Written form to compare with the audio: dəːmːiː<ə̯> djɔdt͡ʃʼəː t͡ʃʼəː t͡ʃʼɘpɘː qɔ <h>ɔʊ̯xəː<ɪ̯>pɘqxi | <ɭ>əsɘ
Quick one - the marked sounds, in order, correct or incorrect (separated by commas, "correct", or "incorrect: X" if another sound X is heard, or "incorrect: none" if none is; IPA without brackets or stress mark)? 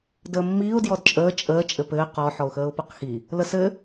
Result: incorrect: ʊ̯, incorrect: ħ, incorrect: ʊ̯, incorrect: l